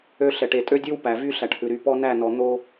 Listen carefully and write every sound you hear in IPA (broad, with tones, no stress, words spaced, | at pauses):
ø˦ ɬɛ˨ʈe˨tʼø˦dʲʉ˦w pæ˨ vy˦ ɬæ˨ʈhʉ˨ ɾy˨pɔ˦næ˦˨nɔ˨ n̪o˦